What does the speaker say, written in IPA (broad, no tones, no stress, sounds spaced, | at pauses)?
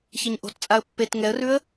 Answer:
ç ɛ ɲ ʔ o̤ t t͡sʼ a ə̯ pː e t ŋ ɛ ə̯ r ʉ ə̯